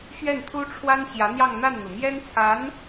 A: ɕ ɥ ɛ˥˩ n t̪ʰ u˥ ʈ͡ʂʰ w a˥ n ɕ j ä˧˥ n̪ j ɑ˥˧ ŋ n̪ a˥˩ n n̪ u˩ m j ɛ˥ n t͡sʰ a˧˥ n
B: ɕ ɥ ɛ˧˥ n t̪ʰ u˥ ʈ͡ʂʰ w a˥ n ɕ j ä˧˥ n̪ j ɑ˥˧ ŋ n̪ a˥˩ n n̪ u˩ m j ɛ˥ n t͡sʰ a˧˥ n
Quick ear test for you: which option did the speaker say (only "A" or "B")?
A